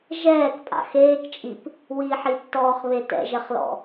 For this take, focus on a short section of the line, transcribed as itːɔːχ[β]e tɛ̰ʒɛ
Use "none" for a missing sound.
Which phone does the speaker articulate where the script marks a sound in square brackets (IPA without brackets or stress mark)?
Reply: β